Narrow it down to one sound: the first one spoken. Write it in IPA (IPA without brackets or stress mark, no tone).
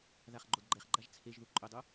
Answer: ð